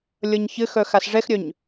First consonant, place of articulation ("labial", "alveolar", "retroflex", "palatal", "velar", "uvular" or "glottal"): alveolar